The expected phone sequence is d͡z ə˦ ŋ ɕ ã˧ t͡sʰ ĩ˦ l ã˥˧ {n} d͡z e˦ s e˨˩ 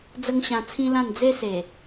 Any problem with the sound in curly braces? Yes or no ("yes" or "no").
no